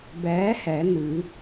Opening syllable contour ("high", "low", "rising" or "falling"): rising